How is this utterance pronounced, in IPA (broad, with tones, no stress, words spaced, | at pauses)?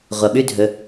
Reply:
ʁʷɐ˩ɓʉ˥dʱɵ˩˧